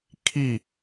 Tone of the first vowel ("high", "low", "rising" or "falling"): falling